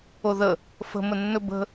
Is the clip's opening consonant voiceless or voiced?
voiced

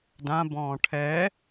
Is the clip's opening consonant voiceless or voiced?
voiced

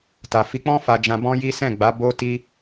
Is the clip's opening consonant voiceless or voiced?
voiceless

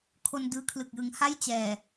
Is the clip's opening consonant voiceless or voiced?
voiceless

